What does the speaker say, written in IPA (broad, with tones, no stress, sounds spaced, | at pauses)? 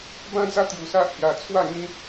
b ã˦ d͡z a˦ t̪ j u˧ s a˦ ʔ h j a˧ t͡sʰ w a˥˧ ŋ ĩ˦